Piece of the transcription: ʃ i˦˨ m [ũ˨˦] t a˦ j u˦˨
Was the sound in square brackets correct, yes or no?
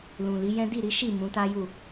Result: yes